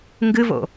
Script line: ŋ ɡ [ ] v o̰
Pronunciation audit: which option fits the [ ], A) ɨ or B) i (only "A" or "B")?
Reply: A